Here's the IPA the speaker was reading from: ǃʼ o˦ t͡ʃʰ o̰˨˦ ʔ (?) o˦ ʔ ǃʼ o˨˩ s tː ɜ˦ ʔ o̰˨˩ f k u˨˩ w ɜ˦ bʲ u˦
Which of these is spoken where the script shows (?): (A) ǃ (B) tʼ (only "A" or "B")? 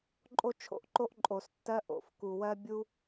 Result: A